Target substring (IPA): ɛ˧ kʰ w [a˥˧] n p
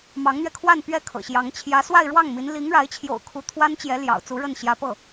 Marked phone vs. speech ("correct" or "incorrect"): correct